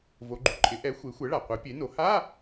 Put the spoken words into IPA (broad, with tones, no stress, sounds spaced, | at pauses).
v o˩˧ ɡ͡ǃ u˩˧ ǃʼ ɪ˩˥ ʔ ɛ˩˥ xʷ e˩˥ xʷ ɛ˩˥ ɭ a˩ qʷ e˩˥ pʲ e˩˥ n o˩˧ h a˧˥˧